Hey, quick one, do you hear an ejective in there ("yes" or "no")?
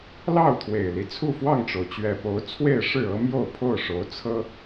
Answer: no